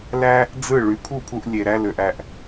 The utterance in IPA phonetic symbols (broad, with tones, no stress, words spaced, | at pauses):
læ˥ | d͡zɯ˥˩ ɭy˩˥pʰu˥˩pʰu˧ʔ lʲe˩ ɾæ˧lø˩ʔæ˩ʔ